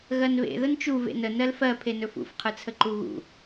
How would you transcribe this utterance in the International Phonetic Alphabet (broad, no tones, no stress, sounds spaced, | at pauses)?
ɣ ɜ n β ḛ ð ə n t͡ʃ u v ḛ n ə n ɜ l f ɜ pʰ e n ɵ f ṵ f qʰ ɯ t͡sʰ ə ǃ u ɣ ṵ